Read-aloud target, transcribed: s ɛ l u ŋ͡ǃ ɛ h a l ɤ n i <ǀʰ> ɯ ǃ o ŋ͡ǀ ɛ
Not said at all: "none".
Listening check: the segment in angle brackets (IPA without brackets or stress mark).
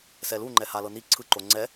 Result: ǀʰ